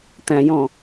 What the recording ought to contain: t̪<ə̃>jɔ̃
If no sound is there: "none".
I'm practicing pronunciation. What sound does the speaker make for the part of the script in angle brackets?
æ̃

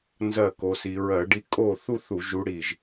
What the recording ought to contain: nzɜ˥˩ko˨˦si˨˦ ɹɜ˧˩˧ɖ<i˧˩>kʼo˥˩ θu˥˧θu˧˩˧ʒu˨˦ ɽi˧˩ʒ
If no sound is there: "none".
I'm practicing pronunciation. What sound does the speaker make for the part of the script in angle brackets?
i˥˩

